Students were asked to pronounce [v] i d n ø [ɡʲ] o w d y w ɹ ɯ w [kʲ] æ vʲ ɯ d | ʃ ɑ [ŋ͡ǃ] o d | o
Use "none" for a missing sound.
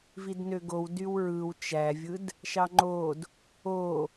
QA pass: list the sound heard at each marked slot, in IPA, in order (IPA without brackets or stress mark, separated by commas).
v, ɡ, t͡ʃ, ŋ͡ǃ